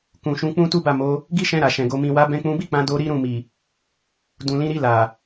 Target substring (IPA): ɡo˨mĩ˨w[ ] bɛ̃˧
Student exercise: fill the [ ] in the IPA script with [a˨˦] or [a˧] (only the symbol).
a˧